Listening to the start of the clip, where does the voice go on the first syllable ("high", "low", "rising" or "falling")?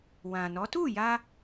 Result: low